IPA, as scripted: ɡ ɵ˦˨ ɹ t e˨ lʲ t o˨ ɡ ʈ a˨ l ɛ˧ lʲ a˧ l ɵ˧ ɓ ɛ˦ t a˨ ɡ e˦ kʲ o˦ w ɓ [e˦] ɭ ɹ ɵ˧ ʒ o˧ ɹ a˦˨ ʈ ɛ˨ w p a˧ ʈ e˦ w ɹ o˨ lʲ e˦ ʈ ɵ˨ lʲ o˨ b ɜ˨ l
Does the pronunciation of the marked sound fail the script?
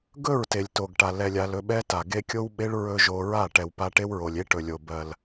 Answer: no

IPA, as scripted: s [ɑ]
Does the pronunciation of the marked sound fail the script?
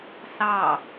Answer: no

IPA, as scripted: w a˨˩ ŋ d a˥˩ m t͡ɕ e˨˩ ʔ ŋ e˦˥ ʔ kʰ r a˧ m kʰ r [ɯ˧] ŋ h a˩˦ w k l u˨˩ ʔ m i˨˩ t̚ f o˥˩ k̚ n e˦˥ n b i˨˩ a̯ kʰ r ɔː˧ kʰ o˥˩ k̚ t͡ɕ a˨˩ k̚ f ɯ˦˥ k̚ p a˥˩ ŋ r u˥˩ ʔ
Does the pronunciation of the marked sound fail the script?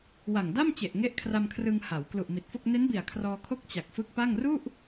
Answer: no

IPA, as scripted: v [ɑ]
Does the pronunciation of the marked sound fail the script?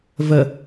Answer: yes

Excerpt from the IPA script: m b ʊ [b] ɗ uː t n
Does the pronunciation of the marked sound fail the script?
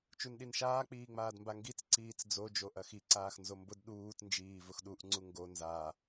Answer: yes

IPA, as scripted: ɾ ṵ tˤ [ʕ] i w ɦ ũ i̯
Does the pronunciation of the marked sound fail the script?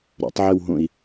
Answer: no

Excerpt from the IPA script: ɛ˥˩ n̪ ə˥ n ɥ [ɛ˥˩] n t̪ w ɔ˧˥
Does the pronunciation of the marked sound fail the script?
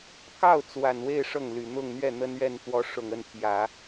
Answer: no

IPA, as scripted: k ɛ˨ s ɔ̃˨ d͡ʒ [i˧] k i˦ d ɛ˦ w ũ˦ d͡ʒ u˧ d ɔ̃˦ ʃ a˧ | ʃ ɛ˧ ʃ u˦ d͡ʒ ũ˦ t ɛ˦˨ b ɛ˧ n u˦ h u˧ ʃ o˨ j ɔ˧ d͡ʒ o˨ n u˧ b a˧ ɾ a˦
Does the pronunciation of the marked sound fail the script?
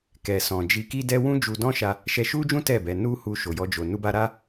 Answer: no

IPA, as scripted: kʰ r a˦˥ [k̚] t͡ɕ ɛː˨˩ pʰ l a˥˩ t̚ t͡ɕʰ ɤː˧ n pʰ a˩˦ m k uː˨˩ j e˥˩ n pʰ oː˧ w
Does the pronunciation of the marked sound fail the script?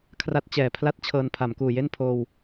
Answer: yes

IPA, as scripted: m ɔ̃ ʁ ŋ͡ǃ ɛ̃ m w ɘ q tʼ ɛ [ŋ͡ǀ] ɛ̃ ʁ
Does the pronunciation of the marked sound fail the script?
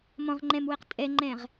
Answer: yes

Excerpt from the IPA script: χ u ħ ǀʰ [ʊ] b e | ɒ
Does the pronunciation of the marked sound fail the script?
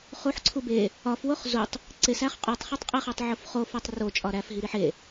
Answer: yes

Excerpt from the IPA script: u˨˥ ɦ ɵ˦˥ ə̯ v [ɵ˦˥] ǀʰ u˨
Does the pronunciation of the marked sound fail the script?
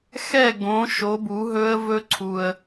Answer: no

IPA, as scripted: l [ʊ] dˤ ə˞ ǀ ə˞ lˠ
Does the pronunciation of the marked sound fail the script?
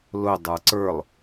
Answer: no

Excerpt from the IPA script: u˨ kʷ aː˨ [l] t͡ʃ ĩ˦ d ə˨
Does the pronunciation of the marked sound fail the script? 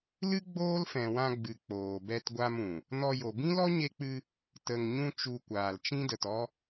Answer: no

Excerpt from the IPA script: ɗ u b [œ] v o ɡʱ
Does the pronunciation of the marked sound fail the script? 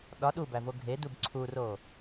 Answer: yes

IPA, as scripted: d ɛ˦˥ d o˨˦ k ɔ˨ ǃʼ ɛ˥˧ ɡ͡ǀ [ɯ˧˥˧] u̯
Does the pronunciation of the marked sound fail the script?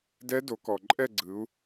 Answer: yes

